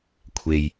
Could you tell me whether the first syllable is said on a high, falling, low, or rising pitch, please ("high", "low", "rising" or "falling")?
low